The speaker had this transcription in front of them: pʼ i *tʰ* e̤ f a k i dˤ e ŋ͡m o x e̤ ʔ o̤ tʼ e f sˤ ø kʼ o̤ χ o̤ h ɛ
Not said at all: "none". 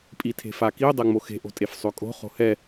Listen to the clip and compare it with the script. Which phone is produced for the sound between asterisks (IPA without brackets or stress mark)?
tʰ